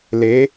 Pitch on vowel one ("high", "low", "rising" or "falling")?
rising